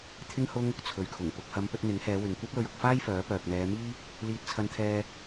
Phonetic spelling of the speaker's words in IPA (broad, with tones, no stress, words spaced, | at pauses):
t̪ʰɪ˥ŋ hʊ˥ŋ | t͡sʰɵ˨ɥkʰʊ˨˩ŋ pʊ˨k̚hɐ˨˧m pɵ˧t̚n̪ɪ˨˥ŋhɛː˨˧ wɪ˨ŋkʷɐ˥p̚lɵ˧ɥ ʊ˨k̚faː˥jfœː˨˥ pœː˨k̚n̪ɛː˨˧miː˥ | liː˧t̚t͡sʰɐ˧nt̪ʰɛː˧